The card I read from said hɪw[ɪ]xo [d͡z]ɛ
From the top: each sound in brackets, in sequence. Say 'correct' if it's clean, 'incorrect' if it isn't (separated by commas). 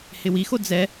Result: incorrect, correct